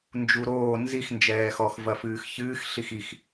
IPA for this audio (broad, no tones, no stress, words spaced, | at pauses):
nd͡ʒuɾoː nzix nd͡ʒɛːxɔx vɐfɨːxçɨːx ɬixix